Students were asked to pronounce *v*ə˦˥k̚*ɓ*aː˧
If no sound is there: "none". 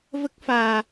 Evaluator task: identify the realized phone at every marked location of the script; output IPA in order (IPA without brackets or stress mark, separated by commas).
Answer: v, f